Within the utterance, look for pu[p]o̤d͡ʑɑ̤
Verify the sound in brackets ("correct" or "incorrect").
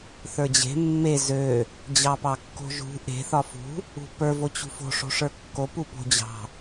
correct